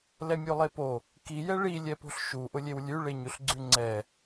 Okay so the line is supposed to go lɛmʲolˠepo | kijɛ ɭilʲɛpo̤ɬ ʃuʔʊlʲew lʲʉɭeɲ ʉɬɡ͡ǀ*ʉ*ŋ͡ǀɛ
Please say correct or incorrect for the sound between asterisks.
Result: correct